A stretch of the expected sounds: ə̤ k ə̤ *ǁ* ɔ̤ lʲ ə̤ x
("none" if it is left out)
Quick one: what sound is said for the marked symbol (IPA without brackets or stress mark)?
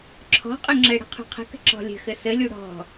ǁ